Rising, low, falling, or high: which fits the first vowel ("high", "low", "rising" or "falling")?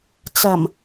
low